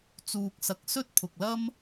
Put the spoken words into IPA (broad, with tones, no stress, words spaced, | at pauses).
t͡suː˧k̚sɐ˧k̚sɵ˥t̚ pʰʊ˨k̚lɐ˥m